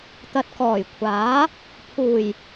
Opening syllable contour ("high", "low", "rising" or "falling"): low